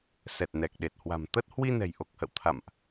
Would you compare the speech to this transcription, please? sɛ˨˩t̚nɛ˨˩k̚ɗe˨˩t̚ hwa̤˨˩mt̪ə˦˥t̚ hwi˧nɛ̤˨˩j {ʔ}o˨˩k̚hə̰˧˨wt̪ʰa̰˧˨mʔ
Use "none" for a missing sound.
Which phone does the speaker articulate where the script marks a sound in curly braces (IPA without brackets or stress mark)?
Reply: ʔ